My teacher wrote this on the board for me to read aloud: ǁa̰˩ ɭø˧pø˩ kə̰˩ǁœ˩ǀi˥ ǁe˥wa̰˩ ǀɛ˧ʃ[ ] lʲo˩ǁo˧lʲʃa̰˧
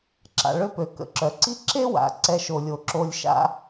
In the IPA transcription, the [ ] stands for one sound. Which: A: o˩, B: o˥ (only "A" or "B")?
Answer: A